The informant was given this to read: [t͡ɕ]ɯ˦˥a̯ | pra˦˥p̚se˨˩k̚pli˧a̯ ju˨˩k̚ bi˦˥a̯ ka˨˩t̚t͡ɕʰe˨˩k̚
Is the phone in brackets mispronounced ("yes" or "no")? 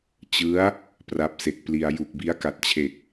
no